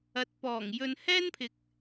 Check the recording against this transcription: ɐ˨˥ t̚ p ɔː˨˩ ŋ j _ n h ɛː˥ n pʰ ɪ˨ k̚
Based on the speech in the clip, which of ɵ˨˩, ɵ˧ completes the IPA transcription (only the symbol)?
ɵ˧